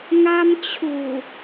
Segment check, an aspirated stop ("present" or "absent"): present